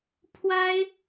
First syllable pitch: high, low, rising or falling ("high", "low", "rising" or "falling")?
high